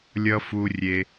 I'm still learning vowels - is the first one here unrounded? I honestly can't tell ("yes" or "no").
yes